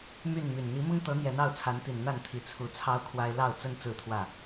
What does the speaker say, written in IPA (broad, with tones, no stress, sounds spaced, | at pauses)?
m y˥˨ n m y˨˩ n n̪ i˨˦ m ʊ˦ ŋ t̪ ɤ˨˦ n̪ j ɛ˨˦ n ɑ˥˨ ʊ̯ t͡sʰ a˨˦ n t̪ i˨˩ n n̪ a˥˨ n t̪ʰ i˨˦ t͡sʰ u˨˦ t͡sʰ ɑ˦ ʊ̯ kʰ w a˦ ɪ̯ l ɑ˥˨ ʊ̯ t͡s ə˦ n t͡s ɹ̩˥˨ t̪ʰ w ä˥˨